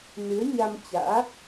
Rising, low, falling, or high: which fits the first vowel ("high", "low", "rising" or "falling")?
rising